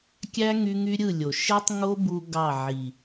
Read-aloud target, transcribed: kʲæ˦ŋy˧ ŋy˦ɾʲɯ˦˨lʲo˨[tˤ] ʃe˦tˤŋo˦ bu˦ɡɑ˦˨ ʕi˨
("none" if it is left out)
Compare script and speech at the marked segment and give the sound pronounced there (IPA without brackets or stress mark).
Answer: none